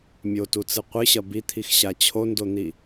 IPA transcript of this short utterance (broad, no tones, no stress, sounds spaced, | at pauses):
mʲ o t u t͡s ɨ qʷ ɨ ɕ ɐ b i t̪ʰ i x ɕ a t͡ɕʰ o n d o n̪ i